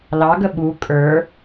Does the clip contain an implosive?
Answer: yes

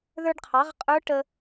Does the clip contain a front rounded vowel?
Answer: no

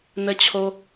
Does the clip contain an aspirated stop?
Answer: yes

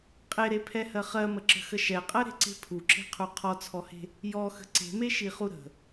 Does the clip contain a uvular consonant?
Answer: yes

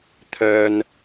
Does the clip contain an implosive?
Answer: no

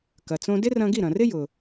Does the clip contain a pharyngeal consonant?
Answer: no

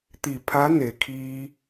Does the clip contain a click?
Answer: no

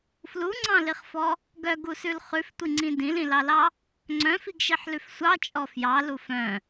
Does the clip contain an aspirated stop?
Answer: no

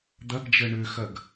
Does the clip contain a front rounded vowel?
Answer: yes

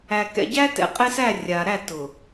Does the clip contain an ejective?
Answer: yes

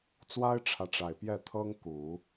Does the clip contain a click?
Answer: no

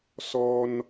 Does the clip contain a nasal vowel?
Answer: no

